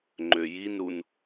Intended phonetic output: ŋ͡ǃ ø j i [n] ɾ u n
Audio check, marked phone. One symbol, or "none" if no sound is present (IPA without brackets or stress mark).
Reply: n